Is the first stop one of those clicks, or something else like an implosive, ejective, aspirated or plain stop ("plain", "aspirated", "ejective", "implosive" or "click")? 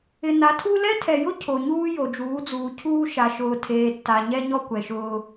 aspirated